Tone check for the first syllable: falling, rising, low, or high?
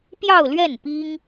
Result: falling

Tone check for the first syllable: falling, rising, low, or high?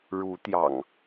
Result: rising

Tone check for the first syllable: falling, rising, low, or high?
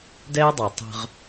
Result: high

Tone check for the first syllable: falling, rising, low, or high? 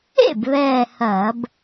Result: falling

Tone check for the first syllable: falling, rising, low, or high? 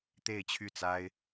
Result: falling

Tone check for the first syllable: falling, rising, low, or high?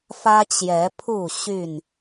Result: high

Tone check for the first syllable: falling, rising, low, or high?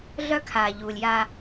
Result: high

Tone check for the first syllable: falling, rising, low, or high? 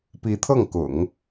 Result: rising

